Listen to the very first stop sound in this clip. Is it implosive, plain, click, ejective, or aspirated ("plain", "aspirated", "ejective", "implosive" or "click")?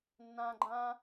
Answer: click